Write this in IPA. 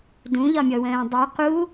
d ũ ʎ ɒ mʲ ɔ w ə̃ː dˤ y q u

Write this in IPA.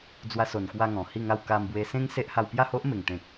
d͡z w a˧ s o˨˩ n k w a˧ ŋ ɔ̃˨˩ h i˥˧ ŋ a˥˧ w k a˧ m b w e˧ s ẽ˦ ŋ s e˦ ʔ h a˧ w p j a˥˧ h o˦ ʔ m e˨˩ ŋ t̪ ẽ˨ k̚

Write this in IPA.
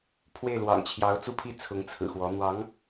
pʰ w e˥˩ ɪ̯ l w ɑ̰˨˩ ŋ t͡ɕʰ j ɑ˧˥ ʊ̯ t͡s u˥˧ pʰ i˥˩ t͡sʰ ʊ˧˥ ŋ t͡sʰ ɹ̩˨˩ x w ɔ˧˥ n̪ w ɑ˧˥ ŋ

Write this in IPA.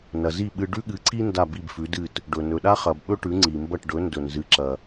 n ɐ˩ z i˥˩ ɓ ɨ˧ ɖ ʉ˥ ɠ ɨ˩˥ ǀ i˥ n d a˥˩ b i˥˩ b f ʉ˩˥ d ɨ˥˩ t | ɖ ɵ˩ n ɵ˩ ɗ a˥ χ ɐ˩ b ɓ ɵ˥ ʈ ʉ˩˥ ŋ͡ǀ i˩ m b ɐ˥˩ ʈ ɖ ɵ˩˥ n d ɵ˩ n z ɨ˩˥ ǁ ɐ˩

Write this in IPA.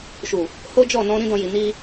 ʃ u˨ | h o˦ d͡ʒ ɔ˦˨ n ɔ̃˧ ɾ ĩ˦ d ɔ̃˧ j i˨ n i˧

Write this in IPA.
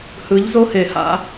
h ɯ˨˦ ʎ z o˦ h e˨ h a̰˦

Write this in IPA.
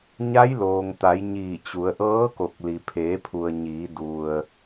ɲ a˧˥ j l oː˩ ŋ t̪ a˩˧ j ɲ iː˧˩ t͡ɕ u˩˧ ə̯ ʔ ɤː˧˥ k o˧˩ k̚ l i˩ pʰ eː˩˧ pʰ u˩ ə̯ ɲ iː˩˧ d u˩ ə̯

